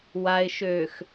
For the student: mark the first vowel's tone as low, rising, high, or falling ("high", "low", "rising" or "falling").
low